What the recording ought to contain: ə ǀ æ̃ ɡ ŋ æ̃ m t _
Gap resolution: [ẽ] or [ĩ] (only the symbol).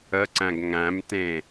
ẽ